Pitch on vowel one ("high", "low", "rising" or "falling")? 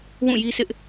falling